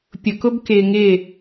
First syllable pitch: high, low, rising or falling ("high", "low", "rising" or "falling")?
low